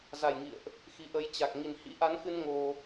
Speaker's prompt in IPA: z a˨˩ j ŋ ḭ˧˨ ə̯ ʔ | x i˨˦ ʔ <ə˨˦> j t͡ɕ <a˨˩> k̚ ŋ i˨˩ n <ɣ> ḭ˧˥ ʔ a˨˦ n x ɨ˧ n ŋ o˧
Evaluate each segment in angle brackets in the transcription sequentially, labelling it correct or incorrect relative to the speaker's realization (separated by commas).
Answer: correct, correct, incorrect